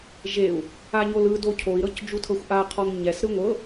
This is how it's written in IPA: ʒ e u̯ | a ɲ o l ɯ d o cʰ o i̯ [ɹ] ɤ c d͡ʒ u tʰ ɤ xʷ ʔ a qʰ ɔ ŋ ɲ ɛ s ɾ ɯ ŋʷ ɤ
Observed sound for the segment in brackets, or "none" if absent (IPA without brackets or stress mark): ɾ